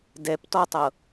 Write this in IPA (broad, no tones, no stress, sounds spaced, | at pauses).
d ɛ p t ɔ tˤ ɤ